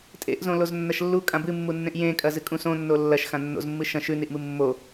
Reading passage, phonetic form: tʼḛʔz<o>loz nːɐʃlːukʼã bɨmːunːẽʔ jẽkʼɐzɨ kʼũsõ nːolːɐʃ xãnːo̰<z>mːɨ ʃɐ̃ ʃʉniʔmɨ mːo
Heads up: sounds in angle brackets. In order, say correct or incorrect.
incorrect, correct

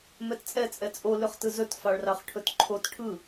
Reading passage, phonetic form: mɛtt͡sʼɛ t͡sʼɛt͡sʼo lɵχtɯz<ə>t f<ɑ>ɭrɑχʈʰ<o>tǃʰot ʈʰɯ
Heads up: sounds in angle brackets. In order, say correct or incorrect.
incorrect, correct, incorrect

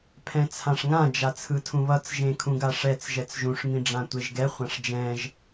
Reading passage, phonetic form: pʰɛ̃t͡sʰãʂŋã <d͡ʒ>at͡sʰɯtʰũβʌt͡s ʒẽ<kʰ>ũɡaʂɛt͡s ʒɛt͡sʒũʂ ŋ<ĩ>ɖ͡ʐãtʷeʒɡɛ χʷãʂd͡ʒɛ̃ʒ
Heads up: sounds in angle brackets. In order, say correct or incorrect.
correct, correct, correct

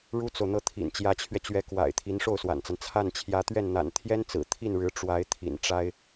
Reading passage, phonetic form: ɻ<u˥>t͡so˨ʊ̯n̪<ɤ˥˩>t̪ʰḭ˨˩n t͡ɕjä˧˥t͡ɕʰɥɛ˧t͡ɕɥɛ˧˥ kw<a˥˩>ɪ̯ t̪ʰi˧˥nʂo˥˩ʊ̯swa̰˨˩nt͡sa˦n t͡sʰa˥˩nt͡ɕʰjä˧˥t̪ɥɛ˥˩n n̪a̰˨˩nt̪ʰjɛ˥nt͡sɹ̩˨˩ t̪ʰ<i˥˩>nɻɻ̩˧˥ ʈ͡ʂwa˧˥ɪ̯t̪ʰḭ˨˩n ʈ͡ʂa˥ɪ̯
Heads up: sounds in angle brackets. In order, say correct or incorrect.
correct, correct, incorrect, correct

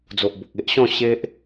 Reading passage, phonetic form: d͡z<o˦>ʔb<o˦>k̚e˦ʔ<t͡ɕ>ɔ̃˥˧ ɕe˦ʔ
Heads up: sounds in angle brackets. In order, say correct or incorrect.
incorrect, incorrect, incorrect

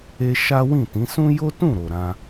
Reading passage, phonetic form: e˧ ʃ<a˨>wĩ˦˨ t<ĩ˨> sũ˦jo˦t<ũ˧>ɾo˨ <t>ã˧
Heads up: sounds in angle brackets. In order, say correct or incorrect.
incorrect, incorrect, incorrect, incorrect

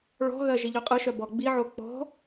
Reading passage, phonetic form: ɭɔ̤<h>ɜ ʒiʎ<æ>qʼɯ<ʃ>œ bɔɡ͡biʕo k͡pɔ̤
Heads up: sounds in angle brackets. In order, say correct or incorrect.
incorrect, incorrect, correct

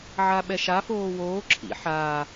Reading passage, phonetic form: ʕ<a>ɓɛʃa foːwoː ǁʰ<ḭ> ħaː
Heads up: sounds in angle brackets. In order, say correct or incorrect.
correct, correct

